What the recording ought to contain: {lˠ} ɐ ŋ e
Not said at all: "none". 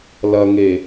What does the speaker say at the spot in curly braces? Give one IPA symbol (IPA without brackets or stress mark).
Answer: l